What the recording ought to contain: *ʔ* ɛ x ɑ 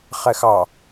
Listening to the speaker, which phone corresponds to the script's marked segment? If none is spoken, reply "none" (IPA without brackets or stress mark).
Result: χ